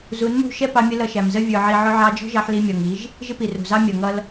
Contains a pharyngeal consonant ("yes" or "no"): yes